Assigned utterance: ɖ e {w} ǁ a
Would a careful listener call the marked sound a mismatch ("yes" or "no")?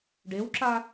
no